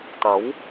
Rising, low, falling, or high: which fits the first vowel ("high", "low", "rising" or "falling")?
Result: rising